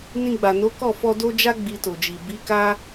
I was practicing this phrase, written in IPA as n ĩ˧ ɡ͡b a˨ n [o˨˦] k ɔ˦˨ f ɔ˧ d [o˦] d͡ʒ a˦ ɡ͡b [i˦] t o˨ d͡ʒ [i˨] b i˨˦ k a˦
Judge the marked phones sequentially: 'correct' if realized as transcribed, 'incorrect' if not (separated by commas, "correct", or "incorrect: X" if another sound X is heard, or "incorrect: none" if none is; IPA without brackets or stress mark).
correct, correct, incorrect: i˧, correct